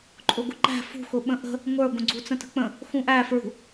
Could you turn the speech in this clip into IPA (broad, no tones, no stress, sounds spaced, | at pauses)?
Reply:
ǃʼ ʊ ɡ ʊ ǃ æ̤ f ṳ x ʊ ɓ ə̃ ʔ ə̤ | ŋʷ ə˞ ɡʷ ə̃ ɡ͡ǀ u t͡s ə̃ t ə̤ k͡p ə̃ | x ũ ʔ æ f ɹ ṳ